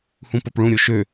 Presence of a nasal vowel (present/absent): present